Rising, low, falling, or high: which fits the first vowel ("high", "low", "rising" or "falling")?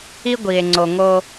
high